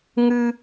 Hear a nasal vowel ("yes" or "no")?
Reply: no